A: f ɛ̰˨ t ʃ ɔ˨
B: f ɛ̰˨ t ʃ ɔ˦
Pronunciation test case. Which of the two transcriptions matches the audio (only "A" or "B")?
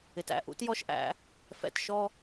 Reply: B